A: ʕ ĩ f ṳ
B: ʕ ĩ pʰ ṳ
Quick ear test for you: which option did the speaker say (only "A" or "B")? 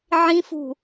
A